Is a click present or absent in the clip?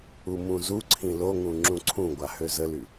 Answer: present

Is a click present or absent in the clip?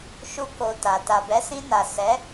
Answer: absent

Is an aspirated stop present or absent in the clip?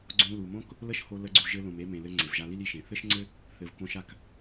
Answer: absent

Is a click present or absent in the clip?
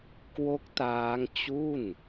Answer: absent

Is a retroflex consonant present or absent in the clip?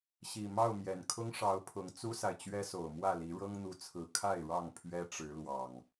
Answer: present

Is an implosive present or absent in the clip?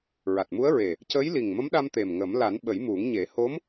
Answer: present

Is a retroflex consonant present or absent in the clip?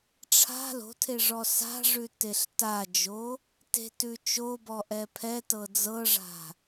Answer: present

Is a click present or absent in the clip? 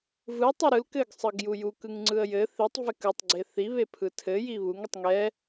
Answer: present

